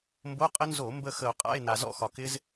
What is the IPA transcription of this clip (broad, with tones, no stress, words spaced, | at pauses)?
mbo˧˥˧qʼə˦˥ nzo˧˩˧ mbə˥˧ xə˧˩˧o̯qʼa̰˧˥˧e̯na˩ zɔ̰˥˧xɒ˩kɪ˦˥z